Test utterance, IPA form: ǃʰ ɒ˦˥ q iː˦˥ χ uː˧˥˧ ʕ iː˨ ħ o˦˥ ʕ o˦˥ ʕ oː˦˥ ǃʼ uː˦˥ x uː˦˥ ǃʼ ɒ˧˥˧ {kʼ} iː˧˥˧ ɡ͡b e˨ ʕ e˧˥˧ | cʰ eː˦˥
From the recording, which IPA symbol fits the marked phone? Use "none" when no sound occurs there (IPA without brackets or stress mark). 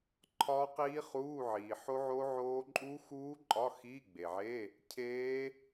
x